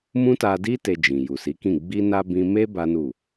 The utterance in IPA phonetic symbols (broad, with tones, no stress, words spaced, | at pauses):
mũ˦ta˧di˦ te˧d͡ʒĩ˨ ju˨si˨˦kĩ˦˨ ɡ͡bi˧na˧ bĩ˦ me˦ ba˦nu˦˨